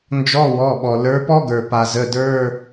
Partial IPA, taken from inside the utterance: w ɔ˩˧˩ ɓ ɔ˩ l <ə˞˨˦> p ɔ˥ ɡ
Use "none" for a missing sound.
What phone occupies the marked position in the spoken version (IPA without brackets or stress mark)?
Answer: ə˞˨˦